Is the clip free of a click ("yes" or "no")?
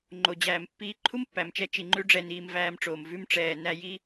no